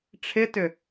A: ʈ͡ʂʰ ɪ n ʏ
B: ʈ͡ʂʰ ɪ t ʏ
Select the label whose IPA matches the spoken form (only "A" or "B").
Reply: B